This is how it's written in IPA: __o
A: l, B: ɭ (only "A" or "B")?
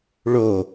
B